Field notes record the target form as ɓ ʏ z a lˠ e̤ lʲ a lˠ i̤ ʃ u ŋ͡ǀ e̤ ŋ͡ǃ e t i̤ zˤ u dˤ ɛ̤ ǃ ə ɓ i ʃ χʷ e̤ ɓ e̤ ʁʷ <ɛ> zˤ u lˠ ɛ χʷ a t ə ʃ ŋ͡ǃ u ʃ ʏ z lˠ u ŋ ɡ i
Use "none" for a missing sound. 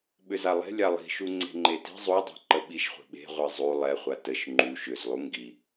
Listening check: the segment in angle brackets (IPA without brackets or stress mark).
ɛ